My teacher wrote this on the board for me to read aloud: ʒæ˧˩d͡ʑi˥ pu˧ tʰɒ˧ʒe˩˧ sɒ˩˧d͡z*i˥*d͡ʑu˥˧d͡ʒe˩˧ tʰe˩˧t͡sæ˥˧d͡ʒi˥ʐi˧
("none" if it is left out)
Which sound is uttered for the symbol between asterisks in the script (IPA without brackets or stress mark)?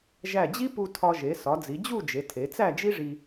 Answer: i˩˧